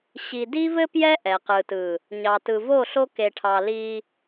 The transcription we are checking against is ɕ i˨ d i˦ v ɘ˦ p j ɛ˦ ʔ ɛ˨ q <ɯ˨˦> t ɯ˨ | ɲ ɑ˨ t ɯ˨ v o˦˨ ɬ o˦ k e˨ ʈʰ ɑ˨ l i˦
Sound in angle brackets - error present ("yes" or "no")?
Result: yes